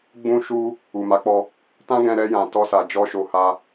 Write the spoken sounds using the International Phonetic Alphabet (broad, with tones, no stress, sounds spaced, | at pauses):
ɡ͡b ũ˧ ʃ u˧ | u˨ m a˨˦ k͡p ɔ˧ | t ã˦ ɡ ɛ̃˧ ɾ ɛ˧ j ã˨ t ɔ˧ s a˨ d͡ʒ ɔ˧ ʃ o˨ h a˧